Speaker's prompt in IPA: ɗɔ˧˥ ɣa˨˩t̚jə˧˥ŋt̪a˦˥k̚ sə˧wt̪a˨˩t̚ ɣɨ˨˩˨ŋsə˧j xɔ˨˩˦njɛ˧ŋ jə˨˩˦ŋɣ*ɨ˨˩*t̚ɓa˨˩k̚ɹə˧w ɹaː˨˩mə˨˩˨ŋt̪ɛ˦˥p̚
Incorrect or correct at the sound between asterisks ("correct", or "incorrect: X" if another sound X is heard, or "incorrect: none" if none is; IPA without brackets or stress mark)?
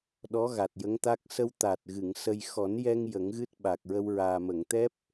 incorrect: ɨ˦˥